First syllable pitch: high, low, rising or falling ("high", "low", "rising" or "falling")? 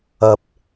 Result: low